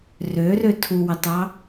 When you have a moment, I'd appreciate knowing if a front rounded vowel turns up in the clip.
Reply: yes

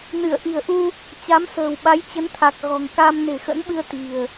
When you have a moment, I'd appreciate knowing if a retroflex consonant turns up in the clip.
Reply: no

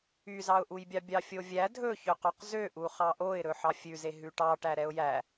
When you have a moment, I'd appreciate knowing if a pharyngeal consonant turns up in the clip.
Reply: yes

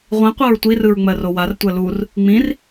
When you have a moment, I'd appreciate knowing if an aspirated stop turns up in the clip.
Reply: no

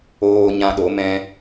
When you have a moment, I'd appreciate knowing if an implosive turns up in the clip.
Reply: yes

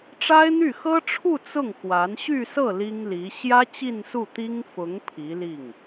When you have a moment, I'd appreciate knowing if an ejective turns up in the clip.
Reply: no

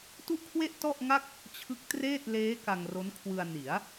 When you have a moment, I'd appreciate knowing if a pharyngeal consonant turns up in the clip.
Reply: no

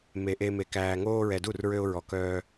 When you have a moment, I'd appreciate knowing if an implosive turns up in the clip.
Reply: no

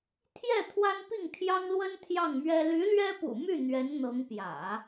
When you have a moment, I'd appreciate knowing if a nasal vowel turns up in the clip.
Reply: no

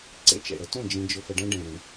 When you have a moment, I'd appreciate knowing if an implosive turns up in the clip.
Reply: no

